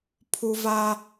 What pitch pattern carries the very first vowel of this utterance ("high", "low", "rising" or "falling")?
high